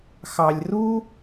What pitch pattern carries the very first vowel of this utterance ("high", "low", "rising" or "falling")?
low